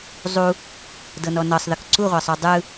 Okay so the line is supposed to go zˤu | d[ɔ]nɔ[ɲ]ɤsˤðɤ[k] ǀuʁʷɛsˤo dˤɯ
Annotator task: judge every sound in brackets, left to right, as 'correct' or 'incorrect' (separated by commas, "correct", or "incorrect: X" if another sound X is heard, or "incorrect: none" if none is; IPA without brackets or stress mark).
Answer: incorrect: ɤ, incorrect: n, correct